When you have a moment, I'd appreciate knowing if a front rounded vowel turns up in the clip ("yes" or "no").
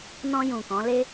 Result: no